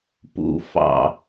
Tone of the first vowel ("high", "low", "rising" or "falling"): falling